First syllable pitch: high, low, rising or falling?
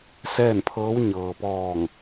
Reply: falling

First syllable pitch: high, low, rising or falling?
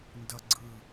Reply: high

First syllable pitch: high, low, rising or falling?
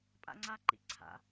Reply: high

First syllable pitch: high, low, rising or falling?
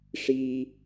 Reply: high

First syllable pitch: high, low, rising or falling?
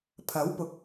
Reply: rising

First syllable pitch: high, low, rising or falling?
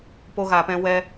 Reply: high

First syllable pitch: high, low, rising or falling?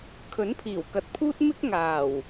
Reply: rising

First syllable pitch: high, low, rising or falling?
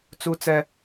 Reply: high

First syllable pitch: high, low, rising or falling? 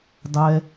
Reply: high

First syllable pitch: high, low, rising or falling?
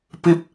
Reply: high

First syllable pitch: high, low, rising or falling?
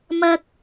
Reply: high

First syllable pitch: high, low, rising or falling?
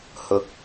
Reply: high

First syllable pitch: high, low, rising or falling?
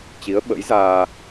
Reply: rising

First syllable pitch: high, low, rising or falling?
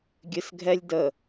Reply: low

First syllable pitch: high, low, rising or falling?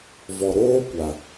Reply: low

